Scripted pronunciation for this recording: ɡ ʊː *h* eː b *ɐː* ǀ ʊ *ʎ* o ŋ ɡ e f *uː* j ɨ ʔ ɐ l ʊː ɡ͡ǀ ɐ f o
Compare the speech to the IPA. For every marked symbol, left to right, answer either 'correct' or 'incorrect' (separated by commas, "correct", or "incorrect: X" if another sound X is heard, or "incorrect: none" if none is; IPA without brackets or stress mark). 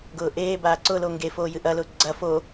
incorrect: ʔ, incorrect: aː, incorrect: l, incorrect: oː